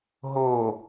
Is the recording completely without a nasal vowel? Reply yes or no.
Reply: yes